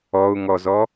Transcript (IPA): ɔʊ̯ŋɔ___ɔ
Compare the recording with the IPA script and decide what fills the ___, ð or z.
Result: z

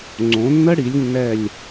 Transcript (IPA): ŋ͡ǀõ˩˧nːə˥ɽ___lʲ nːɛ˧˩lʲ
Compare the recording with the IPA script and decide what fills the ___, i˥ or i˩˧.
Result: i˩˧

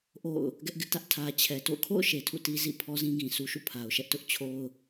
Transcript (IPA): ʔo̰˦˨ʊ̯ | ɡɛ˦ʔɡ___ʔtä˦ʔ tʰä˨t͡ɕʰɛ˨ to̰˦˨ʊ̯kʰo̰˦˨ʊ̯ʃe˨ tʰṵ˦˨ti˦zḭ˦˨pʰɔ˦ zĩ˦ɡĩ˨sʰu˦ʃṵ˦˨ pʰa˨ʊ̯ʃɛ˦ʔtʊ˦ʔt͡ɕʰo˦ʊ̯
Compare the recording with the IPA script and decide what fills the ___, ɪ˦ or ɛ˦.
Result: ɪ˦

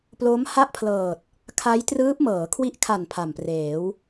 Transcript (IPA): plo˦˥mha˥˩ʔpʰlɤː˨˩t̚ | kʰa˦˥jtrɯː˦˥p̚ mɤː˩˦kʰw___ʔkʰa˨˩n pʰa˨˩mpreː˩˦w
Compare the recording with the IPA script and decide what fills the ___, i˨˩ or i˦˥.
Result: i˦˥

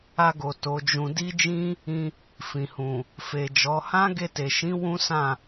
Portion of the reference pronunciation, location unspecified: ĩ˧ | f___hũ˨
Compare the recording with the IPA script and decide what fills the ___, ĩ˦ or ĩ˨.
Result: ĩ˨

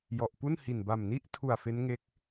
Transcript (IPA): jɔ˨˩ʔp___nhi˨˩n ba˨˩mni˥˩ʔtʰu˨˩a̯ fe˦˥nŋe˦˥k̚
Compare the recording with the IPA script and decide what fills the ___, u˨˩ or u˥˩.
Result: u˥˩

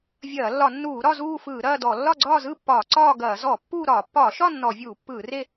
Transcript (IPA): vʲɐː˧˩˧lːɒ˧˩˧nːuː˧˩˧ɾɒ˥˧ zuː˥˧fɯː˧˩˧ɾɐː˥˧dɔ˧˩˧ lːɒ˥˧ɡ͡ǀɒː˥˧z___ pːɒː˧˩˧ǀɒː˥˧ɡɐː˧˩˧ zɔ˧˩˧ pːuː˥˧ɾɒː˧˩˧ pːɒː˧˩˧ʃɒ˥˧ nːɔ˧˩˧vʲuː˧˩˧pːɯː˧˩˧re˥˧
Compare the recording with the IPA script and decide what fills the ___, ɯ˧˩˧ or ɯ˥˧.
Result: ɯ˥˧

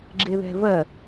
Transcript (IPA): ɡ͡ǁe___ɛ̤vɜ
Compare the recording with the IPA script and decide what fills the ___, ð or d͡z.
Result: ð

